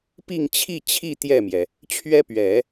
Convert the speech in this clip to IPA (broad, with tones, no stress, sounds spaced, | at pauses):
p i˥˧ ŋ t͡ɕʰ i˥˧ t͡ɕʰ i˥˧ t̪ j ɛ˥˩ m j ɛ˩ | t͡ɕʰ ɥ ɛ˥ p ɥ ɛ˨˩˦